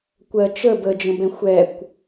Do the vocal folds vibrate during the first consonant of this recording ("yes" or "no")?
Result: no